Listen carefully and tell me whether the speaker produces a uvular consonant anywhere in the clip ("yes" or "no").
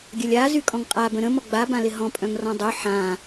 yes